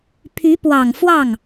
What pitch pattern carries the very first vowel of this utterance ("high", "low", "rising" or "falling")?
rising